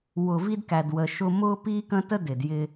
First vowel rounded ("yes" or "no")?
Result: yes